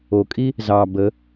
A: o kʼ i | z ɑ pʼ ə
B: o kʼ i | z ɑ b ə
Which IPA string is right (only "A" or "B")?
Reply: B